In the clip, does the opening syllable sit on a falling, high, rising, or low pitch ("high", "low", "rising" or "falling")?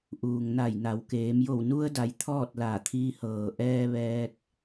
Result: low